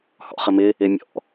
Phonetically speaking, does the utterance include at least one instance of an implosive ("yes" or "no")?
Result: no